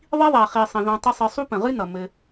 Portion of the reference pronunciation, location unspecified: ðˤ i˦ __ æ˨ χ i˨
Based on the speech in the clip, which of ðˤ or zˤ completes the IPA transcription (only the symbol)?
ðˤ